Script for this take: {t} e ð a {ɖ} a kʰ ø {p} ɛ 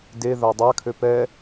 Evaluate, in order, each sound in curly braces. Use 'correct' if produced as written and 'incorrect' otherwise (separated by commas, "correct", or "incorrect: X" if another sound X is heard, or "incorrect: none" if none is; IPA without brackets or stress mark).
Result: incorrect: d, incorrect: dˤ, correct